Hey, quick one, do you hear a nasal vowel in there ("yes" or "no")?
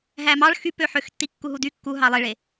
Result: no